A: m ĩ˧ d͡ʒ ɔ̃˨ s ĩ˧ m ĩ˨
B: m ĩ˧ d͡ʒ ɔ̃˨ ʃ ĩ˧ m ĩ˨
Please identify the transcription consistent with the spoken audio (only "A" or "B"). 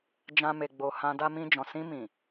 A